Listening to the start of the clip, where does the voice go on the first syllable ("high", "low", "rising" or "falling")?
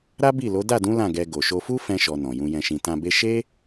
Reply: high